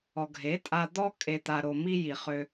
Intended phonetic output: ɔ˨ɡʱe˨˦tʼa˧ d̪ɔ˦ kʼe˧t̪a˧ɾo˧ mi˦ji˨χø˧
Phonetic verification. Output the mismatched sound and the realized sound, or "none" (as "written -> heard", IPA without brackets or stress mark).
none